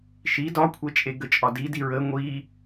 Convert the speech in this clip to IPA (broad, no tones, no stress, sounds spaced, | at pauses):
ʃ i d ɒ kʷʰ ɛ t͡ʃʼ e ɡ ə t͡ʃʼ ɒ d i d i ɹ ə ŋʷ i